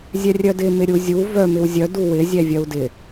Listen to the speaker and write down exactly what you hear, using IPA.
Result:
zʲɛrʲœdɪ mɪɾʲuzʲu vœ mɪwzʲœ duwɪ zʲɛvʲœu̯dɪ

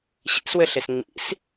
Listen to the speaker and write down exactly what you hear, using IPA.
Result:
ɕḭswɘɬes ŋ͡mḭs

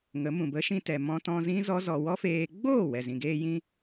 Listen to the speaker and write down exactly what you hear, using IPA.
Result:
ŋə˨˦mũ˨ bə˨˦ʃĩ˧tɛ˨ mɔ̃˧tɔ̃˧zĩ˦ zɔ˦zɔ˧ wɔ˦feː˧ ɡ͡boː˦˨wɛ˨zĩ˨ɡeː˧ jĩ˦

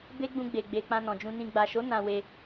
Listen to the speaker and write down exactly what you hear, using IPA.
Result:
be˦ɡ͡bũ˧ ɡ͡be˨ɡ͡be˨ k͡pã˧nɔ̃˨d͡ʒũ˧nĩ˧ ɡ͡ba˨ʃo˨˦ nã˧we˧

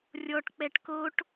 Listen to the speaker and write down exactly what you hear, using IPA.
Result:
rʲɔʈ k͡pɛʈkoʈ

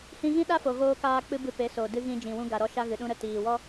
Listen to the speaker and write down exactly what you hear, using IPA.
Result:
hĩ˧ɣĩ˦ɗa˦fo˨ ɣoː˧kaː˧k͡pɨ˧ bɨ˧pe˨˦so˨ dɨ˧ɣĩ˧ d͡ʒĩ˨wũ˧ ɡa˨ɾɔ˧ʃa˧ɣɨ˨ ɗũ˧ɾə˦˨ tiː˨wɔ˦

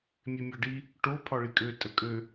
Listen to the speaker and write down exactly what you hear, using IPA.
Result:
mʲemʲɒɖi | ʈo pʰɒɭikʼø tʼəkʼø

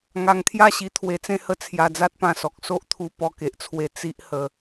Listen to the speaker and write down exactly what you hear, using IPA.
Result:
ŋa˧ŋt̪ʰja˥˧ɕi˧ t̪ʰwe˧t͡sẽ˥˧hə˦ t͡sʰja˧d͡za˦t̚pã˧sɔ˨k̚ so˦ʔt̪ʰu˧ pɔ˧ke˨ʔt͡sʰwe˧ t͡si˦ʔ hə˧

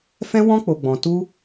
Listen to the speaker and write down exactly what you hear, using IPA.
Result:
fɛ̃˦wɔ̃˦k͡po˧ ɡ͡bɔ̃˧tu˦

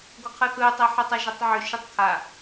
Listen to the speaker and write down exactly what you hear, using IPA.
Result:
ɡʷəqʰɯθɯə̯tˤɛ ħɯtˤaʒatˤʕʏ ʃɯtˤkʰa

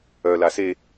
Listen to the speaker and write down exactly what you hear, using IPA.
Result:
œla se

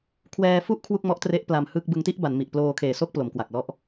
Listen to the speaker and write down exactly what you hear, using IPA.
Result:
kʰwɛː˧fu˥˩ʔ kʰwu˥˩k̚mɔ˦˥ʔtre˦˥ʔ pla˧mhɯ˥˩k̚ bɯ˧ŋti˥˩ʔba˩˦nmi˨˩ʔ ploː˧kʰeː˨˩ so˥˩k̚plo˩˦mkwa˨˩k̚lɔ˦˥ʔ

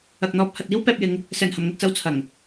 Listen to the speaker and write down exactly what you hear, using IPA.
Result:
ɐ˨k̚n̪ɔː˧p̚ hɐ˨t̚iː˥w pɛː˧p̚jɪ˨˧ŋ | sɛː˨˩nhɐ˨˩mŋɵ˨t̚t͡sɐ˧w t͡sʰɐ˨˩ŋ

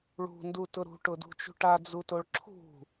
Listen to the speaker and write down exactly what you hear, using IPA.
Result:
ɭṳndutʊ ɾṳʈʊdṳt͡ʃṳ ʈad͡zutoɭ ǁʰṳ

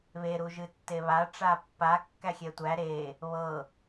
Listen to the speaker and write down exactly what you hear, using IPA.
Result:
βe ɾuʒɨtːeβa ʈ͡ʂapːa kːæxʲɛtʷæ ɾe | βɤ

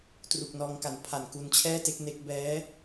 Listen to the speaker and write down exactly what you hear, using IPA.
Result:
tru˨˩k̚ nɔː˧ŋ ka˨˩n pʰa˨˩nku˧nt͡ɕʰɛː˥˩te˥˩k̚ ne˦˥k̚ bɛː˦˥

